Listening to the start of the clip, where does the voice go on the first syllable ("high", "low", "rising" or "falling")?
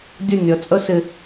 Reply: falling